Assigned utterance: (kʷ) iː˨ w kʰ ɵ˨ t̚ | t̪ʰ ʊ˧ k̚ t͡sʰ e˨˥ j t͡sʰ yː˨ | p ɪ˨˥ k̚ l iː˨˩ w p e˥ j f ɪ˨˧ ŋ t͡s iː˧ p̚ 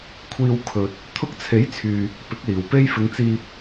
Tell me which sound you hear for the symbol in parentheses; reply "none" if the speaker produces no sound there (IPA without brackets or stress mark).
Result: kʷʰ